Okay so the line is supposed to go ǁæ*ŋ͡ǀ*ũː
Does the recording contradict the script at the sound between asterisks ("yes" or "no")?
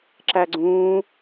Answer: yes